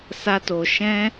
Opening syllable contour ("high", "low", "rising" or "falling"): high